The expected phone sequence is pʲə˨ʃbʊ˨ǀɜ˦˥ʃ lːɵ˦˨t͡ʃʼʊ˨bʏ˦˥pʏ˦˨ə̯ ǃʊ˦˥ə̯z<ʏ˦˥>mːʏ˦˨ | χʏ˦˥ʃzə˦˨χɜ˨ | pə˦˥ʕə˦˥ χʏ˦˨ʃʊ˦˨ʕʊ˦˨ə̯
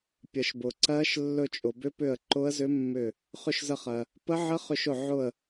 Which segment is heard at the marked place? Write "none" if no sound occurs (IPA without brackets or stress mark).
ʏ˦˥